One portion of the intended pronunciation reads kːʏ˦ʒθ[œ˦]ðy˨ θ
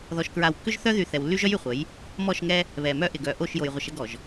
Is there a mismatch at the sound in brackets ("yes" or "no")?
no